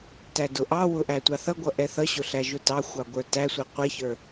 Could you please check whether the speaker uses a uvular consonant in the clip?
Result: yes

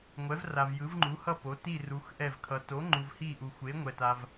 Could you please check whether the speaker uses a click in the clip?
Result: yes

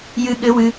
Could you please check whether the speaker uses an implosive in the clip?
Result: yes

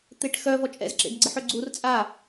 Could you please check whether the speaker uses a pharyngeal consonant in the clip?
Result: yes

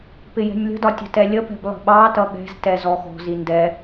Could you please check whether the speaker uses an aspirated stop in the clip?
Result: no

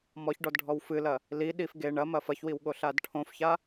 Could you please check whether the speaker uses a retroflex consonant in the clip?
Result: yes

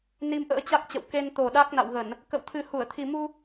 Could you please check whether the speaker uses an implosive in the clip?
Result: yes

